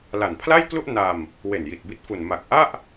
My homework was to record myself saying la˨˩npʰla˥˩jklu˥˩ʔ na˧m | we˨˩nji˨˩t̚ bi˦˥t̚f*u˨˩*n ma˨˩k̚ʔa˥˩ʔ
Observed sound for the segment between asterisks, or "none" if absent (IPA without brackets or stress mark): u˨˩